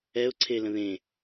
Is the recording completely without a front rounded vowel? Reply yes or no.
yes